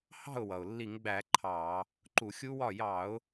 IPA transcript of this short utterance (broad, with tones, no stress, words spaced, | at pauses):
hɑ̤˥˩ʊ̯wʌ˩ʊ̯lːi˧˩˧ŋɡ͡bæ˧˩˧ ǃʰɑ˧˩˧ | ǃu˧˩˧xʲu˦˥wɒ˥˩ jɑ˧˩˧ʊ̯